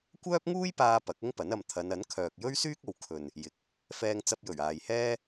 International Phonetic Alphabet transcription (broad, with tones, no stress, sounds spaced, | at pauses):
kʷ œː˥ p̚ ŋ uː˥ j p aː˧ p ɐ˨˥ k̚ ʊ˥ ŋ p ɐ˨˥ n ɐ˨ m t̪ʰ ɐ˨˧ n ɐ˨˥ n kʰ œː˨ k̚ j ɵ˥ ɥ s yː˥ k̚ o˨ w kʰ ɵ˨ n | j ɪ˨ k̚ | f ɛː˧ ŋ t͡s ɐ˧ p̚ j ɵ˨˩ ɥ aː˨ j h ɛː˥